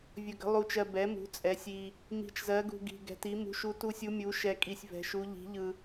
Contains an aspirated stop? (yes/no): no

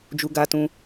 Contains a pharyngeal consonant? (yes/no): no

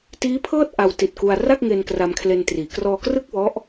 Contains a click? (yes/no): no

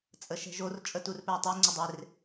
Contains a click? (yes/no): yes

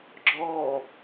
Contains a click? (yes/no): yes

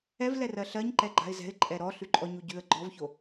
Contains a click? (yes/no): yes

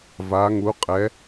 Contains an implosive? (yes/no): no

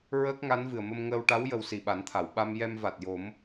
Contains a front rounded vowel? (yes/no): no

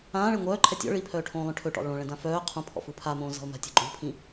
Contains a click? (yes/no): yes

